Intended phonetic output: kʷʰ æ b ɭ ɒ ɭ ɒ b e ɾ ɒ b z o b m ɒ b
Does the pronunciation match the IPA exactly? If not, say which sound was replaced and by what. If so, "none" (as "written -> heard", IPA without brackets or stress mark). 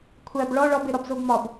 none